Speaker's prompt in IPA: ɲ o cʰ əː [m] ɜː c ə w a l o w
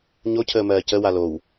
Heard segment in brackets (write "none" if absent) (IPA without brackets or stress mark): m